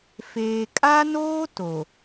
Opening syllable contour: low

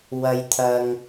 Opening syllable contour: high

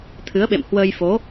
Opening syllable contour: rising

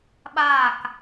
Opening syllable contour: falling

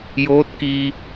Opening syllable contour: rising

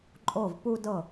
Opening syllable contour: falling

